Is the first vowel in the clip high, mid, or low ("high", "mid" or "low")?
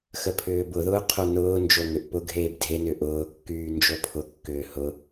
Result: mid